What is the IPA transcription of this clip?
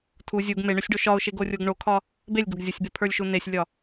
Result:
tʰ u zʲ u ɡ m e ɳ o sʲ ɖ o ʃ ɒ ʊ̯ ʃ e ɡ o rʲ o ɡ ɳ o kʰ ɒ | b e lʲ ɡ o ɡ zʲ o sʲ b e pʰ ə˞ lʲ ʃ u n e sʲ lʲ ɒ

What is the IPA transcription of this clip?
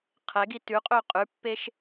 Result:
qʰ ɛ ɡ i t ʉ qʼ ø qʼ ʉ pː e ʃ

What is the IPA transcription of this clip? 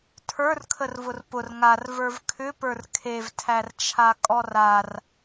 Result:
tʰ ə˞ r kʰ ə r v ʊ r p ʊ r ŋ a r v ə˞ v kʰ ʏ p ə˞ r kʰ e v tʰ æ r t͡ʃʰ a kʼ ɔ r a r

